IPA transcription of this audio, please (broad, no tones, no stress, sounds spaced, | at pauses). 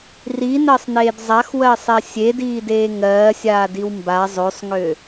r i n ɜ sˤ n eː d zˤ a x w ɜ sˤ ɛ sʲ e d iː d eː ŋ ɜː sʲ aː d i w m b a zˤ ø sˤ ŋ ø